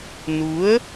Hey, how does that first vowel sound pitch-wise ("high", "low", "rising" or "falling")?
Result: rising